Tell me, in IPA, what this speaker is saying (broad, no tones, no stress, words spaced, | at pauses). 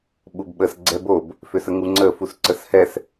ɓubɓəs ɡ͡ǀɛbob | fʏsəŋuŋ͡ǀə fusǀəshɛs